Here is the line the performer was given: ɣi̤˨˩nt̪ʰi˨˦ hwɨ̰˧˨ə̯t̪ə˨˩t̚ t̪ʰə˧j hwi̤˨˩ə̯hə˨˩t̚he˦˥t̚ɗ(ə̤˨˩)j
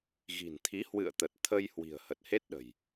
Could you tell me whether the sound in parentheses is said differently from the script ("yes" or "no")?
no